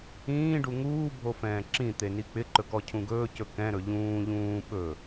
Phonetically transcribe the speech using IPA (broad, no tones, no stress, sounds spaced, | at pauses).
ĩː ɖ u ŋ uː bʱ o f ɛ̃ː ǁ ĩ t̪ e n i k͡p ɪ ǃ ɵ k ɔ cʰ ũ ɡ ɵː c ɵ k ɛ̃ ɾ ɵ ʎ ũː ʎ ũː ɓ ɵ